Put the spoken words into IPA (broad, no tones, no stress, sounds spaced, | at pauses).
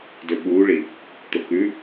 d ɵ ɓ u ɭ i | t̪ o k ʉ